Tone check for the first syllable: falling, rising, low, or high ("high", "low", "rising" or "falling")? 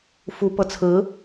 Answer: rising